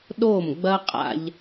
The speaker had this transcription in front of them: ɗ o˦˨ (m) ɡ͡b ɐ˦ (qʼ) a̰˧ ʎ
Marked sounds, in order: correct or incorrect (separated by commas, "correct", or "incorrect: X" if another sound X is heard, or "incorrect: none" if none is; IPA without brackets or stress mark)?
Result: correct, correct